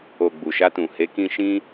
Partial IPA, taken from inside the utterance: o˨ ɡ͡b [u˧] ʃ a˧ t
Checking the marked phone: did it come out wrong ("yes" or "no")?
yes